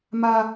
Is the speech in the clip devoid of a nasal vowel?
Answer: yes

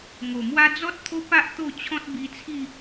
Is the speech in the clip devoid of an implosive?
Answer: yes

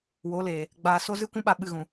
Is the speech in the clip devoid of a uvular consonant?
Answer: yes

